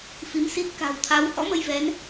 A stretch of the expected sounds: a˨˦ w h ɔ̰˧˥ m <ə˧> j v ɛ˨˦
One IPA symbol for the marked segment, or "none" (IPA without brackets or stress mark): ə˧